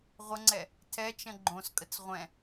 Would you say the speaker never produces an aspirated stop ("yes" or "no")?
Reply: no